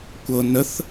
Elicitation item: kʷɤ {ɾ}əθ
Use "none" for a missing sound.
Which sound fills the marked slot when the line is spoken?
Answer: n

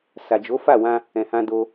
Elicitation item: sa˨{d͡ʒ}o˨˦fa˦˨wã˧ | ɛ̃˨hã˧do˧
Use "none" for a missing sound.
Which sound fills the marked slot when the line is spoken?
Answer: d͡ʒ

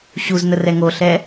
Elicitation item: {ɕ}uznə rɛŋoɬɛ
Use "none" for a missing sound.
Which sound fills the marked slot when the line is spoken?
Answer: ɕ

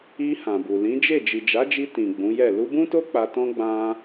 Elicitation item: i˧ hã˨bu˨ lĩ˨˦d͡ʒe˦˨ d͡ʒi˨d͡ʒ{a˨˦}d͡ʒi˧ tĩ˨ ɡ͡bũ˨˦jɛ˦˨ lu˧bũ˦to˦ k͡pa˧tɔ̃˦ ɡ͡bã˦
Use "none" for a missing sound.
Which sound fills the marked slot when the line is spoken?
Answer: a˨˦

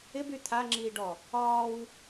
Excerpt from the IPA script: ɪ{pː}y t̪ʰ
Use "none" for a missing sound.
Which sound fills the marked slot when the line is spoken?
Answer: b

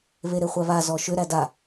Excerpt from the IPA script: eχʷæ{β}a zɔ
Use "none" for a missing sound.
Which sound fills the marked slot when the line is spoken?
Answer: β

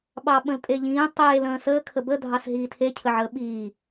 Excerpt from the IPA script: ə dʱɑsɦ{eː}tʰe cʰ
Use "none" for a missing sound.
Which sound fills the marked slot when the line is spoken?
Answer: iː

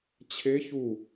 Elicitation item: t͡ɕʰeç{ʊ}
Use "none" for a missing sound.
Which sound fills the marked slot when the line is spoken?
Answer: u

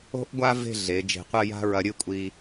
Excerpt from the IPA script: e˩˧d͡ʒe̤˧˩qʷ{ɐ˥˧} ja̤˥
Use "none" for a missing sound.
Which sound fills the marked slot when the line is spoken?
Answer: ɐ˥˧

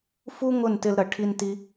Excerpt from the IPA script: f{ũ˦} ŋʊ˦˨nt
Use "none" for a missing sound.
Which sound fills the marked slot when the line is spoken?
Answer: u˦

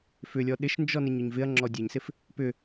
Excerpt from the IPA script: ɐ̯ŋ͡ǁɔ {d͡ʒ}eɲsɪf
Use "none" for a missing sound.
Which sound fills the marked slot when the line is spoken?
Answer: dʲ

